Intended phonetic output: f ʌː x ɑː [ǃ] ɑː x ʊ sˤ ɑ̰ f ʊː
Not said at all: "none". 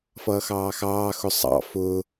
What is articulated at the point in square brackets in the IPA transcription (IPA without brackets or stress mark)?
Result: x